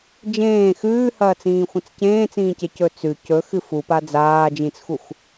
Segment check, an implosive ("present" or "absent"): absent